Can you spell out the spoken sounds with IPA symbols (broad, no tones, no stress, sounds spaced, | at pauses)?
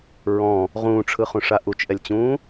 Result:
ɹ ɔ̃ | ʁ ũː ʈ͡ʂʰ ɯ χ ũ ʂ a ʔ u t͡ʃ ʔ ɛ lʲ t͡ɕ ũː